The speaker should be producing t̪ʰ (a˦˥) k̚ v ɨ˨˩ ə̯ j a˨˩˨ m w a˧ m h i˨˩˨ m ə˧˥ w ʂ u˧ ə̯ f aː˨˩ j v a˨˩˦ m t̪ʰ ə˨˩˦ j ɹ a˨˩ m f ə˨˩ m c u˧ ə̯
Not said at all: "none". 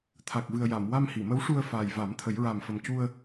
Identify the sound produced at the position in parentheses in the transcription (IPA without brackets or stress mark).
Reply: a˨˩